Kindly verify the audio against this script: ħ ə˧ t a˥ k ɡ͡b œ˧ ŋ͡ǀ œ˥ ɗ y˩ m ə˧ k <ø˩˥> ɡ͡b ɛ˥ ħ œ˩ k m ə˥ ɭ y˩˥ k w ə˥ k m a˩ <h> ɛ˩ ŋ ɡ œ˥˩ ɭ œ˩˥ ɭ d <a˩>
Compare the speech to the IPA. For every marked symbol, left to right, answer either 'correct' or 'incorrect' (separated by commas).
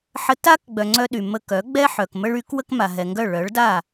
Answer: incorrect, incorrect, incorrect